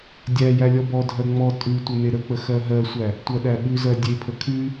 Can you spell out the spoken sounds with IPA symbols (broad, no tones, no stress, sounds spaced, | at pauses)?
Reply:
dʲ æ j æ lʲ ɔ b ɔ dʱ ɜ ŋ͡m ɔ tʼ ʉ tʷ ə n e ɾ ə k͡p ə x ɜ ɦ ɜ sʷ æ | tʷ ɜ ɗ æ ɓ ʉ z ɜ dʲ e pʰ ə kʰ ʉ